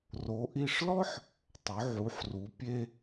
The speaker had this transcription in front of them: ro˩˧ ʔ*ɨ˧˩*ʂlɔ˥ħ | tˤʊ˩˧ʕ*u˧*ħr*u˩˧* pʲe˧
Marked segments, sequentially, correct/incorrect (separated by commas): incorrect, incorrect, correct